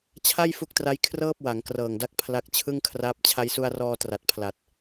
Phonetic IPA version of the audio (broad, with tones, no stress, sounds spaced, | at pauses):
t͡ɕʰ a˥˩ j f u˦˥ k̚ t r a˦˥ j kʰ r ɤː˥˩ p̚ w a˩˦ ŋ k r ɤː˨˩ ŋ d a˦˥ k̚ pʰ l a˦˥ k̚ t͡ɕʰ ɯ˥˩ ŋ kʰ r aː˦˥ p̚ t͡ɕʰ a˧ j s u˧ a̯ r ɔː˧ t r a˨˩ t̚ pʰ l a˨˩ t̚